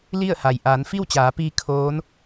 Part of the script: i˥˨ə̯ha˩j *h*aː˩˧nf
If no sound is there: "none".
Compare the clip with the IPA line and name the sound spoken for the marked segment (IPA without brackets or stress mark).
ʔ